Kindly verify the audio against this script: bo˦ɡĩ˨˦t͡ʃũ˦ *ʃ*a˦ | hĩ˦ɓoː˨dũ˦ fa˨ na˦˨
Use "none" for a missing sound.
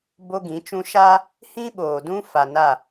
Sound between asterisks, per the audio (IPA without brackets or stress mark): ʃ